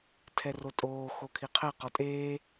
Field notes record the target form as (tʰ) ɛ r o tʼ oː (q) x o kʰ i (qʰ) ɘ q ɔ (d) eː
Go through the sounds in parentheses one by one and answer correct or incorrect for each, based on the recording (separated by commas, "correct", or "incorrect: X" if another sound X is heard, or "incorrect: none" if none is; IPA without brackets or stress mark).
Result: correct, incorrect: none, correct, incorrect: tʼ